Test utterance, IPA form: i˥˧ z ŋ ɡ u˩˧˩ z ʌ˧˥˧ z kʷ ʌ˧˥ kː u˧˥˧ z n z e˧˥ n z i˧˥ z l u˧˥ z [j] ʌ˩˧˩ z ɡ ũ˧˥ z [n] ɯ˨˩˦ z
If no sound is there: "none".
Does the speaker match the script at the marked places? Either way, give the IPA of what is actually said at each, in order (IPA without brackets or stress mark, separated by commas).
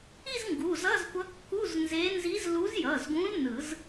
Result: j, n